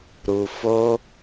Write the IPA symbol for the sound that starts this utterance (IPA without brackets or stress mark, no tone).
ɾ